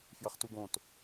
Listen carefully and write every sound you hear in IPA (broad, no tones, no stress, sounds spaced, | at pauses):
f j ɐ χ t u ɡ õ t